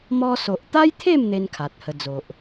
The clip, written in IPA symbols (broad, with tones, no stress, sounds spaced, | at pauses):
m ɔ˧ s o˨ ʔ t̪ a˦ j t̪ʰ e˥˧ m n̪ e˦ n kʰ a˨ t̚ h ə˧ d͡z o˨ ʔ